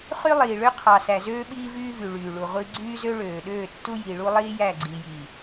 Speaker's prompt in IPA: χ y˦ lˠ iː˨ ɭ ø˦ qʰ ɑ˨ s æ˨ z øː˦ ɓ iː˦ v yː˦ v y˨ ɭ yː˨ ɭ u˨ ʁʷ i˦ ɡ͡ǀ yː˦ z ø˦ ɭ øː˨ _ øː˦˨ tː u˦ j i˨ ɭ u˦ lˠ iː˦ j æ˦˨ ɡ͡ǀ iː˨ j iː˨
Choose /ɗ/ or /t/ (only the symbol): ɗ